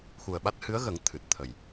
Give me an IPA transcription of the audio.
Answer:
x u˨˩ ə̯ ɓ a˦˥ t̚ h ɨ˧˥ ə̯ ɣ ə˨˩˦ ŋ t̪ʰ ɨ˨˩ t̚ t̪ʰ ə˨˩ j

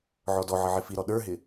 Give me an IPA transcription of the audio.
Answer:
ʕ ɔ d ɔ ʕ ə ʕ ɪ f i ɾ ɔ ɗ ə˞ ɦ ɪ

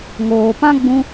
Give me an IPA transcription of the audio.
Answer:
ŋ oː˨ p ã˦ ɡ͡b ũ˦

